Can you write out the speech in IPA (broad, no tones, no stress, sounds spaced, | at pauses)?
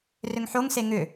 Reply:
r ʏ ŋ ħ o ŋ s e ŋ ʏ